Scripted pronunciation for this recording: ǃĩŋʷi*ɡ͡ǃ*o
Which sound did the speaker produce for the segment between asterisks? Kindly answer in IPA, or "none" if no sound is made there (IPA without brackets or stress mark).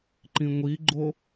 ɡ͡ǃ